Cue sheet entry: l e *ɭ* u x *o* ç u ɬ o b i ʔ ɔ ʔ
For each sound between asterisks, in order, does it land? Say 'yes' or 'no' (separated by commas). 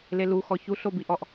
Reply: no, no